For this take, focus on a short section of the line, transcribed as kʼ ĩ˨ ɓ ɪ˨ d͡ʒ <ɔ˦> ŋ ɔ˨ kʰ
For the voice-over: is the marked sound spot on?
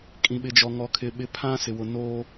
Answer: no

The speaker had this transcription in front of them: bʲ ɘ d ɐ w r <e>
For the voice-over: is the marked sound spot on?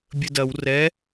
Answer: no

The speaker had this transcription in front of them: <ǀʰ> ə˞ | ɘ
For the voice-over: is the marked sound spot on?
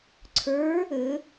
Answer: yes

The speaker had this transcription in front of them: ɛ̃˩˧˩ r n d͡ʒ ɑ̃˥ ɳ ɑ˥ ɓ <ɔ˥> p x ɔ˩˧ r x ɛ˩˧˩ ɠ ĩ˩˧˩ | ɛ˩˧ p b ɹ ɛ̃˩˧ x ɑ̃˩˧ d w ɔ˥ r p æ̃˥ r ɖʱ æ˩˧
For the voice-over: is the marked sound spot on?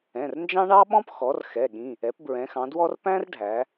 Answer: no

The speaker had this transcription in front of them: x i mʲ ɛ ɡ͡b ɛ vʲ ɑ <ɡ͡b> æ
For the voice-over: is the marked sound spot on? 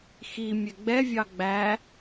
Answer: yes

